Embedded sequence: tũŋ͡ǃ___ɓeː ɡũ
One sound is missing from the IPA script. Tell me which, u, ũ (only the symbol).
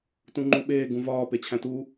u